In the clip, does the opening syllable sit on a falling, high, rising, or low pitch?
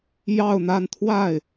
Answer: falling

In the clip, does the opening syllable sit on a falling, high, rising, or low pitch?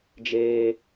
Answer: high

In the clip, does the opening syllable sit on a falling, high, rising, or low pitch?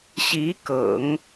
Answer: rising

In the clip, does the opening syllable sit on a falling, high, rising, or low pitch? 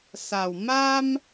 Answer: low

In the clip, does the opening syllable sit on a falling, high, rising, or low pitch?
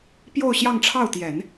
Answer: falling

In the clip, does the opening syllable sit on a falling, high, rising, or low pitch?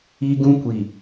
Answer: high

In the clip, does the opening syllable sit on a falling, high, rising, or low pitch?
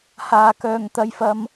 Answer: low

